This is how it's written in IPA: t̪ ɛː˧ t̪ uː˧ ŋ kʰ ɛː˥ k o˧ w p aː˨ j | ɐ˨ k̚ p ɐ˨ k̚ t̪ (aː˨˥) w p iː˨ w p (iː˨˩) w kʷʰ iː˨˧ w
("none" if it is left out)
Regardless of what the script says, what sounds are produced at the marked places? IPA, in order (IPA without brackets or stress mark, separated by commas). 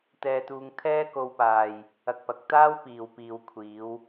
aː˥, iː˨